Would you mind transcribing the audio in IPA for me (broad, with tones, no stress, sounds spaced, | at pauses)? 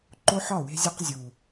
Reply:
ǃ o˦ ħ ɒ˦˨ w e̤˦ zʲ ɒ˦ q zʲ u˨